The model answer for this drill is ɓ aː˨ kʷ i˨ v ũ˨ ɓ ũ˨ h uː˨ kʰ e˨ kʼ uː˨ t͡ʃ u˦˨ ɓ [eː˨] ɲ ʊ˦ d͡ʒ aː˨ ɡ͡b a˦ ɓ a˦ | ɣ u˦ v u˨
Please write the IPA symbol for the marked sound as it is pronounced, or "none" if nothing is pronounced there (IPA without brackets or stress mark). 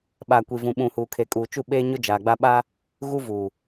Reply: eː˦